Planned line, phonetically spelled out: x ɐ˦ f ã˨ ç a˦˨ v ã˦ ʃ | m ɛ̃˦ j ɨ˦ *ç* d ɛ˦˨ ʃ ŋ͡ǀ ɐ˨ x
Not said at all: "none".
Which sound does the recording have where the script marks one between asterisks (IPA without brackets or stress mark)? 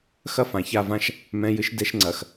ʃ